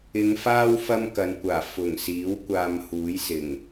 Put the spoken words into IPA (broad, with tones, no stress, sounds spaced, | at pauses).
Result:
ɪ˨˧ ŋ f aː˥ w f ɐ˥ m k ɐ˨˧ n kʷ aː˨˩ f ʊ˨˩ ŋ s iː˨˥ w kʷ aː˧ m h uː˨˥ j s ɪ˨˩ ŋ